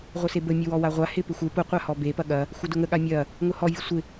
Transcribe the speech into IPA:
ʁʷ ə s e b ə mʲ ə w ɔ w a ʁʷ a h ɪ p ɪ xʷ ɪ p ʊ qʷ a h ɔ b e p ɐ ɠ ɐ | xʷ ɐ d ʊ ŋ ə ɠ a mʲ ɐ | ŋ ʊ h ɔ vʲ ə sʷ ɪ

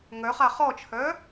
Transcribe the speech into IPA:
ŋ œ χ a χ ɔ t͡ʃʰ œ

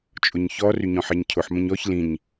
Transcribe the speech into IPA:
t͡ʃʼ ʊ ɲ ç ɔ r y ɲ ɔ̃ ħ ɛ ɲ cʰ ʊ ħ m ə̃ ɲ ɔ ç l ĩ ɲ

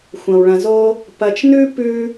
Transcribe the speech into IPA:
xʷ ɐ̃˧ w ɭ ɐ̃˧ z o˥ | p ɐ˧ t͡ʃ n ʉ˥ p ʉ˥

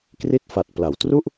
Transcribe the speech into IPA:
k r i˥˩ t̚ f a˨˩ t̚ p l a˩˦ w t r u˥˩ ʔ

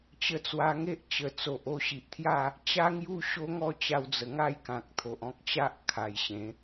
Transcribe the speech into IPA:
t͡ɕ ə˧ t͡s w a˧ ŋ e˦ ʔ t͡ɕ ə˨˩ t͡s o˨ ʔ o˥˧ ɕ i˨ ʔ t̪ʰ j a˥˧ | t͡ɕ a˦ ŋ j u˦ ɕ o˦ ŋ ɔ˥˧ t͡ɕ a˧ w d͡z ə˨˩ ŋ a˥˧ j k ã˨ k̚ t̪ʰ o˨ ʔ ɔ̃˦ k̚ t͡ɕ a˦ ʔ kʰ a˨˩ j ɕ ẽ˨˦

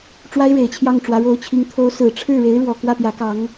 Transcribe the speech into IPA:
ʈ͡ʂ w a˥ ɪ̯ ɻ e˨˩ ɪ̯ t͡ɕʰ j ɑ˥˩ ŋ ʈ͡ʂ w ä˧˥ ɻ o˧˥ ʊ̯ t͡ɕʰ i˧˥ ŋ t̪ʰ o˧˥ ʊ̯ s ɹ̩˨˩ ʈ͡ʂʰ ɻ̩˥˩ ɻ e˧˥ ɪ̯ ɻ w ɔ˨˩ k w ä˥˩ p j ä˧˥ k ɑ˧˥ ŋ

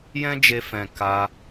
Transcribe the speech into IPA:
j ɛ̃˦ d͡ʒ e˧ f ɛ̃˨ k a˧

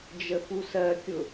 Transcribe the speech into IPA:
d͡ʒ ə f u s ɜ kʲ ʊ

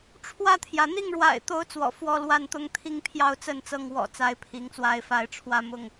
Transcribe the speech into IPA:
ʈ͡ʂʰ w ä˥˨ t̪ʰ j ä˩ n̪ i˥˨ ŋ ɻ w a̰˨˩ ɪ̯ t̪ o˨˦ ʊ̯ t͡s w ɔ̰˨˩ f w ɔ˥˨ l w a˥˨ n t̪ ʊ˦ ŋ t̪ʰ i˥˨ ŋ pʰ j ɑ˥˨ ʊ̯ t͡s ə˥˨ n t͡s ɤ˥˨ ŋ w ɔ̰˨˩ t͡s a˦ ɪ̯ pʰ i˨˦ ŋ t͡s w a˦ ɪ̯ f a˦ ɪ̯ ʈ͡ʂʰ w ä˥˨ m ʊ˥˨ ŋ

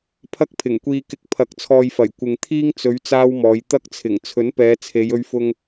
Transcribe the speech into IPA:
pʰ ɐ˥ k̚ pʰ ɪ˨˩ ŋ kʷ iː˧ k ɪ˧ k̚ pʰ ɐ˨˥ k̚ t͡sʰ ɔː˨ j f ɐ˨˩ j kʷ ɪ˨ ŋ t̪ʰ iː˥ ŋ t͡s ɵ˨˧ ɥ t͡s aː˥ w m ɔː˨˧ j t̪ ɐ˥ k̚ t͡sʰ ɪ˨˩ ŋ t͡sʰ ɵ˨˥ n p ɛː˨˧ t͡sʰ e˨˧ j ɵ˧ ɥ f ʊ˧ ŋ

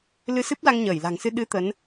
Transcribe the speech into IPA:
l ɨ˧ s ɨ˦˥ p̚ l a˧ ŋ ɲ əː˧˩ j l a̤˨˩ ŋ s ɨ˧ ɗ ɨ˨˦ t̪ ə˨˦ n

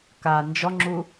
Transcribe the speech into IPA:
k a n d͡ʒ ɔ ŋ͡ǁ u

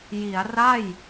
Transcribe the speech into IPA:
j i˩˦ a̯ r a˥˩ j

